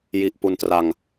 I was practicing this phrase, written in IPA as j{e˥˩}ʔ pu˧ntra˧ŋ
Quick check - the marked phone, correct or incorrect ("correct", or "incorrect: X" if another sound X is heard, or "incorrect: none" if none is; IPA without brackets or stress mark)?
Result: incorrect: i˥˩